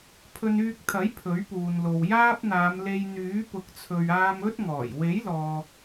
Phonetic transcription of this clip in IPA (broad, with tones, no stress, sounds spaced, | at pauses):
pʰ ɵ˧ n yː˧ k̚ t̪ʰ ɐ˨˥ j pʰ ɵ˨˥ ɥ p uː˨ n l o˨ w j aː˥ p̚ n̪ aː˨˧ m l e˧ j n̪ yː˨˥ p ʊ˨˥ k̚ t͡sʰ ɵ˨ ɥ aː˧ m ɵ˥ t̚ ŋ ɔː˨˩ j w e˨˥ j l ɔː˨